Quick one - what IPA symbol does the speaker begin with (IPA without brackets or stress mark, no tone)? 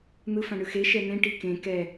n̪